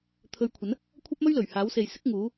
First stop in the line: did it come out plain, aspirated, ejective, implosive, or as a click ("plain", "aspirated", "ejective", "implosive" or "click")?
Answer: aspirated